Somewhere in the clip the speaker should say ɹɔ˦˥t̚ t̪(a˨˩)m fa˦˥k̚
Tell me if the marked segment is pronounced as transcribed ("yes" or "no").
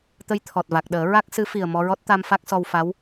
no